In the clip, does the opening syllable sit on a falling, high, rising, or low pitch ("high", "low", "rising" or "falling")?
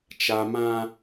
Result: high